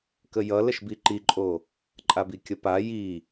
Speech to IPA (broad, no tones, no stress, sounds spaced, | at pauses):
k ə j ʌ l ə ʃ b i ǃ i ǃʼ o | ǃʼ a b i kʲ ə p a j i